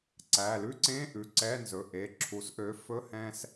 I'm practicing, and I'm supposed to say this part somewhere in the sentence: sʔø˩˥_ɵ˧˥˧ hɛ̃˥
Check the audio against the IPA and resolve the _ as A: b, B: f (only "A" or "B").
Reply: B